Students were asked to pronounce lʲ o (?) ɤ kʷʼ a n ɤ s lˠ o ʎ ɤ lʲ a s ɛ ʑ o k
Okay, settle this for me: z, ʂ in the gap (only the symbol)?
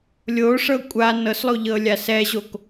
ʂ